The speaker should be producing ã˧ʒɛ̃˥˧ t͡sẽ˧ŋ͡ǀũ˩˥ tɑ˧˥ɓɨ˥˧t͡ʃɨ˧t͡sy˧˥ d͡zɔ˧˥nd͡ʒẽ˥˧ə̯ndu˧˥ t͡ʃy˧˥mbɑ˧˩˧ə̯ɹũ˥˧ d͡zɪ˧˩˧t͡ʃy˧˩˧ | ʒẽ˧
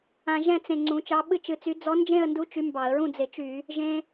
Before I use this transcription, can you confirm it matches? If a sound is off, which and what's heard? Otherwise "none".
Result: t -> t͡ʃ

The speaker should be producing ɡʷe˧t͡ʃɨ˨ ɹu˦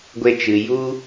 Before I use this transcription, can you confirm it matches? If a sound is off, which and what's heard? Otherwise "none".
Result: ɹ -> j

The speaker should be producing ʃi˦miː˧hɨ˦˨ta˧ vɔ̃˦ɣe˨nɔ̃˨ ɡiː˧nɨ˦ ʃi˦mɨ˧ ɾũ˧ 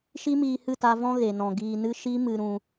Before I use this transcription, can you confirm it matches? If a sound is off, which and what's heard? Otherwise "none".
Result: none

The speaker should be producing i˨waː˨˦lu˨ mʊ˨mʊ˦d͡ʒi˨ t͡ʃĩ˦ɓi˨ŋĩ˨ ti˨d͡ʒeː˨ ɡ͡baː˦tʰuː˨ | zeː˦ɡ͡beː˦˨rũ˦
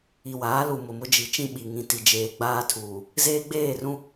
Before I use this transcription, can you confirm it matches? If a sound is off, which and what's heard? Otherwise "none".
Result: none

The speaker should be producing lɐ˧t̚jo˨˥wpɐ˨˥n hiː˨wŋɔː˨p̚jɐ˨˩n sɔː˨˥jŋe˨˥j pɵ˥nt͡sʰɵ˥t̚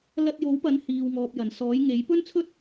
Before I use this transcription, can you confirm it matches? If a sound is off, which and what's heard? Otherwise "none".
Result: none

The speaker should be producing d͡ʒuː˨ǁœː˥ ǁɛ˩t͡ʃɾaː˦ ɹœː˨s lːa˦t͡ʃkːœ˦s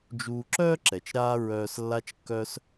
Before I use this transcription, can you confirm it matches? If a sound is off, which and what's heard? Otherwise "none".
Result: none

